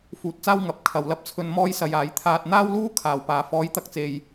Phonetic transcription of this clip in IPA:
f uː˨˥ t̚ t͡s aː˥ w ŋ ɐ˨˥ p̚ kʰ ɐ˨ w l ɐ˧ p̚ t͡sʰ ɵ˧ n m ɔː˥ j s ɐ˧ j aː˨˥ j t̪ʰ aː˧ t̚ n̪ aː˥ w l uː˥ kʰ aː˨ w p aː˨ f ɔː˨˥ j t̪ ɐ˨ k̚ t͡s e˨ j

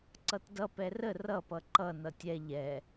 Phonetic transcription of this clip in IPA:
ǀ ʌ t d ʌ p ɛ r ə r ʌ p ʌ ǃ ʌ n ʌ tʲ ɛ ʎ ɛ

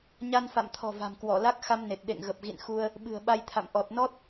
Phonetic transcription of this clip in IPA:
ɲ a˧ n f a̰˧˨ m t̪ʰ ɔ̤˨˩ v a̤˨˩ m k w ɔ˧˩ l a˦˥ k̚ x a˧ m n e˨˩ t̚ ɗ ḛ˧˨ ŋ ɣ ə˨˩ p̚ ɣ ḭ˧˨ n x u˧ ə̯ | ɓ ɨ̤˨˩ ə̯ ɓ a˧ j t̪ʰ a̰˧˨ m ʔ ɔ˨˩ t̚ n ɔ˦˥ t̚

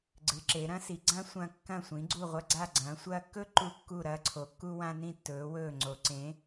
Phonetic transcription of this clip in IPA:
ɡ͡ǀ ɨ˩˧ ǁ e˩˧ ɾ ɐ̃˦˥ s i˩˧ ɡ͡ǀ ã˦˥ sʷ ɐ̃ː˧ kː ɐ̃˧˩ sʷ ĩ˩˧ ɡ͡ǀ u˧˩ ʁʷ ɐ˧ ɡ͡ǀ a˧˩ ɡ͡ǀ ɐ̃ː˩˧ sʷ ɐː˧ kː ɵ˦˥ ǃ u˧˩ kː u˧˩ ɾ ɐː˧ ǀʰ o˩˧ kː u˧ w ã˧ n ĩ˧˩ tː ɵː˩˧ w ɵː˧˩ ŋ͡ǀ o˩˧ ǀ ẽ˩˧

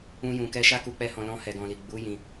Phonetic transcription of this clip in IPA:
ũ˧ j ũ˨ k ɛ˧ ʃ a˦ k u˧ k͡p ɛ˦ h ɔ̃˧ l ɔ̃˧ h ɛ˨ ɡ ɔ̃˨ l i˨ ɡ͡b u˨˦ j ĩ˧

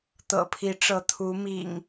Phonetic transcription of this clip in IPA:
t̪ ɤ̰˨˩ pʰ i˨˦ ʈ͡ʂ ɤ˨˦ t̪ʰ u˨˦ m ḭ˨˩ ŋ

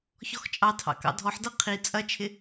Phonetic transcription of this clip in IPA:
ç ɔ x t͡ʃʼ ɑ tʰ ɑ̰ k ɑ̰ dʱ ɔ ħ d ɤ qʰ i t͡sʼ ɐ t͡ʃʰ ɪ

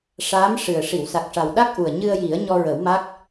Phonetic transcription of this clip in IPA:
ʂ aː˧˥ m ʂ ɨ˨˩ ə̯ ʂ i˨˩˨ w s a˨˩ k̚ ʂ a˨˩ w ɗ a˦˥ k̚ ʔ u˨˩ ə̯ ɲ ɨ˧ ə̯ j i˨˩˦ ə̯ ɲ ɔ˧ ɹ ə˨˩˦ w m a˦˥ k̚

